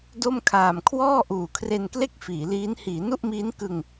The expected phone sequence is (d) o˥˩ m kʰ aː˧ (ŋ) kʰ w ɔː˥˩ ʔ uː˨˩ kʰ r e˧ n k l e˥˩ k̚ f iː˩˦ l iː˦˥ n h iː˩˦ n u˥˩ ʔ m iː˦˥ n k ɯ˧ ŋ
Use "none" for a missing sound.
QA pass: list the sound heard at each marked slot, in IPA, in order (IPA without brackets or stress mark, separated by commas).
d, m